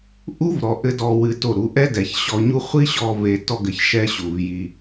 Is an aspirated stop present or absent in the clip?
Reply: absent